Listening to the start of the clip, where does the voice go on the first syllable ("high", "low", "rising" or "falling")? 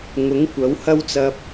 rising